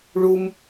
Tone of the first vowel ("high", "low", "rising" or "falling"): high